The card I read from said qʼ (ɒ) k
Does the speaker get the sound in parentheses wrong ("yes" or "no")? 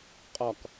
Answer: no